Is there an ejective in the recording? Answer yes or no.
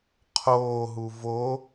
no